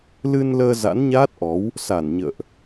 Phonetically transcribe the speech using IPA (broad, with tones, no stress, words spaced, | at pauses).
lɨ˧nləː˧ za̰˧˥nɲaː˦˥t̚ʔɔ˨˦w | sa˧˩nɲə̰ː˧˨ʔ